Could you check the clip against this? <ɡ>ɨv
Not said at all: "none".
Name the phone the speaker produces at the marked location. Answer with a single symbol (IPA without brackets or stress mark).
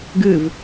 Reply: ɡ